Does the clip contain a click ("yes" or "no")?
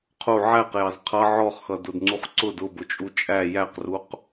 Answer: yes